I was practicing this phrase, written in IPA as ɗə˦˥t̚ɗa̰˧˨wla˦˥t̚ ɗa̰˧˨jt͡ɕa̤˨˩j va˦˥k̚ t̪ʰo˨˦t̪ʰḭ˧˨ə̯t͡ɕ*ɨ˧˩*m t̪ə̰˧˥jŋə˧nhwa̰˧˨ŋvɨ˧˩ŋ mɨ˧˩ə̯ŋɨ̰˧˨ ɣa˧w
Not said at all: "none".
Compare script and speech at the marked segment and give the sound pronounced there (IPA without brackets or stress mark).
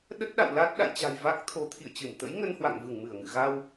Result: ɨ˧˩